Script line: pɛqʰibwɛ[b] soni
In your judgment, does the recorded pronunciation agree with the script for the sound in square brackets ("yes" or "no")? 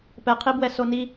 no